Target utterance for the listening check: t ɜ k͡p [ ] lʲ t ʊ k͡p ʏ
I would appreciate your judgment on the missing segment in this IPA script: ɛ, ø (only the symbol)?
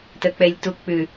ɛ